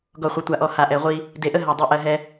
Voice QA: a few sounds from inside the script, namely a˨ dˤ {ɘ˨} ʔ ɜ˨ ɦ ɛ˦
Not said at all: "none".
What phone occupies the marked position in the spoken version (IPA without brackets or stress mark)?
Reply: e˨